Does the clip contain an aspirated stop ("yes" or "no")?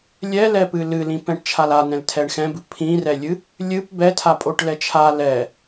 yes